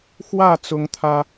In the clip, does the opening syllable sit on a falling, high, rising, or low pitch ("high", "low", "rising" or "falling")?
falling